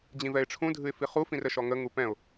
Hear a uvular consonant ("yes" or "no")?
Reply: yes